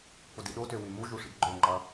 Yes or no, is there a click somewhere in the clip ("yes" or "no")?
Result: yes